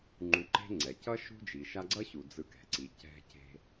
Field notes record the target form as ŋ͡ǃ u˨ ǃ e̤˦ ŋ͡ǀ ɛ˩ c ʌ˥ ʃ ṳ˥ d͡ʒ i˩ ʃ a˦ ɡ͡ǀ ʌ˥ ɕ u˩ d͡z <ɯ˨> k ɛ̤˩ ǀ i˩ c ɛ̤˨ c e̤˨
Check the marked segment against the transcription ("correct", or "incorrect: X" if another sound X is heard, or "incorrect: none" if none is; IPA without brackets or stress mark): correct